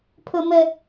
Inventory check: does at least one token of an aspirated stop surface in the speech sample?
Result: yes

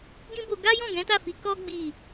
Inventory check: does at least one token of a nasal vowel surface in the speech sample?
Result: yes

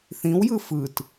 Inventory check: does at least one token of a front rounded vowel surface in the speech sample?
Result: no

